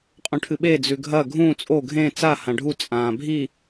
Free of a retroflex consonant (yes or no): no